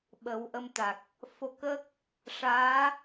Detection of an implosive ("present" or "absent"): present